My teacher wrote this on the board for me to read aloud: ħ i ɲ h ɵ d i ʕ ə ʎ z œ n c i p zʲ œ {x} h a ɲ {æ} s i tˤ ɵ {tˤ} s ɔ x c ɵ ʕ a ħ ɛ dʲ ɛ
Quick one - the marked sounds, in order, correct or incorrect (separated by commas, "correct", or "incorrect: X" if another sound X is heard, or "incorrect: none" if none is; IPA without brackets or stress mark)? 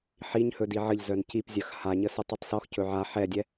correct, incorrect: ə, correct